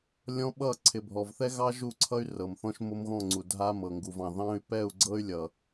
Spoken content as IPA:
lʲɔ̃˦ɓʌ˦˨ ǀʰɪ˨bʱɔ˨vθɛ˦ɣɑ˦ ʒu˦˨ǀʰʌ˦y̯ rɤ˨mθɔ̃˦ʃ mo˦mɣɔ̃˦˨ŋ͡ǀu˨ dʱa˦mɤ˨ŋɡu˨vɑ̃˨ ðɑ̃˦y̯ pɛ˦˨u̯ɡ͡ǀɤ˦y̯lʲʌ˨

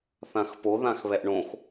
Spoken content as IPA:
θãxpoðãxβɛʔ ɳõx

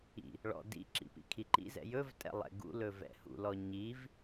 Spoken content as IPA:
ḭ | ɭɔ̰ dḭǁḭ pḭkʰiǃḭzɛ̰ jɵvtʼɛ̰ lˠɛ̰ɡṵlɵ vɛ̰hṵlɔ ɲiv

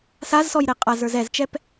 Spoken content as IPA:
sazsɔj ɾeqʼaz ə˞zɛzt͡ʃɛp

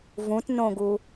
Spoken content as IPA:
vũtnõɡu

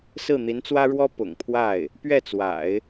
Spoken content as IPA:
sɹ̩˥˩n̪i˧˥nt͡swä˥ɻwɔ˥ pʊ̰˨˩ŋpʰwa˥˩ɪ̯ | pɥɛ˥˩t͡swa̰˨˩˦ɪ̯

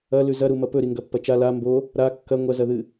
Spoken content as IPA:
ɐlʉ zɐɾumɐ pɵɾiŋɡɐpːɐ t͡ʃa la mbo | ɾa kːɐ ŋʷɐzɐðɨ

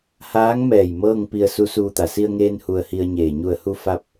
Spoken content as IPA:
haː˧˥ŋmɛː˧˩j mɤː˥˨ŋpi˧ə̯ su˧˥suː˧t̪a˩˧ si˧ə̯ŋeː˧n hu˧ə̯hi˧ə̯ɲeː˧˩ ɲu˧˩ə̯hu˧ fa˧p̚

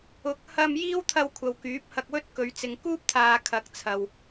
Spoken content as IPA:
ʊ˨˥k̚ hɐ˥m jiː˥wt̪ʰɐ˧wkʷʰɐ˨w kyː˨˥p̚hɐ˧k̚wɵ˥t̚kɵ˨˧ɥ t͡sɪ˨ŋkuː˥p̚t̪ʰaː˨ kʰɐ˨˥k̚t͡sʰɐ˨w

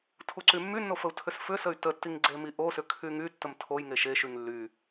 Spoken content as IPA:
tʰuǀymːynːo fəu̯tʰʏsfʏsəy̯ tətːiŋ ɡ͡ǀemiʔosʏ kʰyŋytːəm tʰoj ŋeʃeʃyŋ lːy

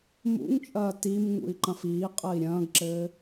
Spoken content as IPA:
mṵŋt͡ʃʼɐː tim ŋṵi̯ǃɐ̃fiːqʼɐi̯ ɾʲɐ̃ːɡǁɘː

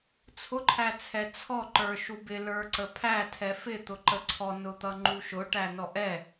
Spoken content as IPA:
t͡sʰʊǃʰæt͡sʰɛ t͡sʰɔǃə˞ ʃubɪ lə˞ǀəpʰæ tʰɛfɪ t̪ʊǃəǀʰɔ nʊt̪ʌŋ͡ǃuʃʊ ʈænɔʔɛ

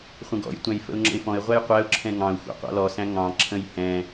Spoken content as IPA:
χʷə̃ɡɔ̰jtʷæ̃j fə̰ʊ̯ŋ͡ǁə̰ɪ̯fɔ̃ɪ̯ʁʷæj qʷæʊ̯ǁʰɛ̃ ŋɑ̃ʊ̯ xʷɑ̰qʷɑ̰lɔsæ̃ ŋɑ̃ǁʰə̃j hɛ̃

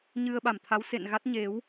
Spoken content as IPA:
ɲɨ˧ə̯ɓa˧˩mt̪ʰa˨˦w sḛ˧˨nɣa˦˥t̚ ɲe˨˦w

